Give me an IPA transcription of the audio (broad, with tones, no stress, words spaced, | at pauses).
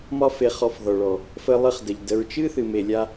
mɒ˦fe˧χɔ˧fðɔ˨ ɭɔ˨ | fə˧lˠɨ˧χ də˨ʎdə˧ɹ t͡ʃɨ˦θɨ˨me˨ lʲa˧